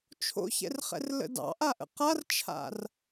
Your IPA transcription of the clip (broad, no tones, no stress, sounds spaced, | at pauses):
t͡ʃʰ o̰ ç ɛ̰ r χ ɛ̰ r l ə̰ d ɑ̰ ʔ a ʔ ə̰ q a r t͡ʃʰ a̰ r